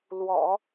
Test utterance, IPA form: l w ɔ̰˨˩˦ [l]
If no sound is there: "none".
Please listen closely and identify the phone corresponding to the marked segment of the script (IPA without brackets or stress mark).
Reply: none